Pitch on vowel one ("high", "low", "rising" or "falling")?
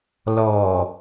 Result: low